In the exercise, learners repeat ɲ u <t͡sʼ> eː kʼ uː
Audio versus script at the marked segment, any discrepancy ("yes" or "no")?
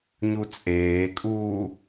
no